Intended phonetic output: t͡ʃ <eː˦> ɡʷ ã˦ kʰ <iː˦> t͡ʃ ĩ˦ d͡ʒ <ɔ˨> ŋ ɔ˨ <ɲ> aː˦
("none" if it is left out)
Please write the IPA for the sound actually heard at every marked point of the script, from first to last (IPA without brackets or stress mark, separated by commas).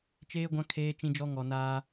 eː˦, eː˦, ɔ˦, n